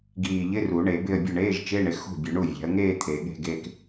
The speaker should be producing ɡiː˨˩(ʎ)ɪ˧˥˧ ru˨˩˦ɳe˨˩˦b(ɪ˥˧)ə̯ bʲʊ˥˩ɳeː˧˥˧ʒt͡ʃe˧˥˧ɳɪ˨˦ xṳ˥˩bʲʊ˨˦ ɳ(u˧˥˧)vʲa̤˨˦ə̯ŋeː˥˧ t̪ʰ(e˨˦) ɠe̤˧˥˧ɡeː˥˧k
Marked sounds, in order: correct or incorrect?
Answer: correct, correct, incorrect: u˥˩, incorrect: e˨˩˦

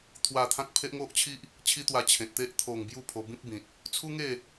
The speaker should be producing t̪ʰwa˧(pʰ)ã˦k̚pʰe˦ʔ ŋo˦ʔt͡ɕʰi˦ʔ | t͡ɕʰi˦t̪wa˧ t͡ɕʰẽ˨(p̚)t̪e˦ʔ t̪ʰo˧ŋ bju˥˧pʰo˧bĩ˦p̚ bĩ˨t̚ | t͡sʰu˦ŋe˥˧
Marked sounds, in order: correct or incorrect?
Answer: incorrect: t̪ʰ, incorrect: t̚

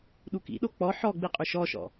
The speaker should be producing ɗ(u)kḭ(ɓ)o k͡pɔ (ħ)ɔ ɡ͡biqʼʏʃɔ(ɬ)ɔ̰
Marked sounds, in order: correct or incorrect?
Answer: correct, incorrect: ɗ, correct, incorrect: ʃ

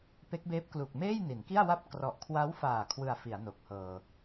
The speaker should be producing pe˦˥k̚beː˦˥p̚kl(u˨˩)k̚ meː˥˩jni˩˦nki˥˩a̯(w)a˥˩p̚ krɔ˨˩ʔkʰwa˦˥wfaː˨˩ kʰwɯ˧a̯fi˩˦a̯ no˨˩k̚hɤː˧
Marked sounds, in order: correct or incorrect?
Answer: correct, correct

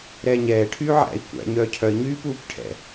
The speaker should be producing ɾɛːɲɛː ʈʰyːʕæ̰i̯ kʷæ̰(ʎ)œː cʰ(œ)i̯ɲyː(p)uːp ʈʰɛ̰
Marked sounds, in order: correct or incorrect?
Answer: incorrect: ɲ, correct, correct

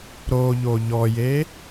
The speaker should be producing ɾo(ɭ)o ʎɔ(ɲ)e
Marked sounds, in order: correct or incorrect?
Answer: incorrect: ʎ, incorrect: j

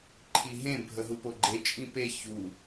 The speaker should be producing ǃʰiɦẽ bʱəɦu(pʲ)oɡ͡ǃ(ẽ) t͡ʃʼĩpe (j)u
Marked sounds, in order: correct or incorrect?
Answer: incorrect: p, incorrect: e, incorrect: ç

